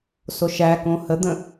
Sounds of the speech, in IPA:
s o ʃ æ k õ h ə d̪ ə̃

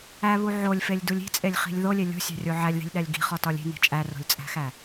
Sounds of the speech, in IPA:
æ β u ʕ o lʲ f e lʲ d u lʲ i̤ t͡sʼ e lʲ χ i̤ lʲ ð o lʲ e lʲ o̤ sʲ æ̤ rʲ o ʕ æ lʲ ð i̤ lʲ ɗ æ lʲ ɡ i̤ χ ɒ t ɒ lʲ i̤ n i̤ t͡ʃʼ æ r o̤ lʲ t͡sʼ æ̤ x æ

